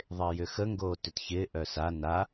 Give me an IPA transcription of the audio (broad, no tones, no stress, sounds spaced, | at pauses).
ðˤ ɪː j ʏ x ə ŋ ɡ oː t ʏ t ç ɪː ʔ œ s a n a